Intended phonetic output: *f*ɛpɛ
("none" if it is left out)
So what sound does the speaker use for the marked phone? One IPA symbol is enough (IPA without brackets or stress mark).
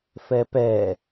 f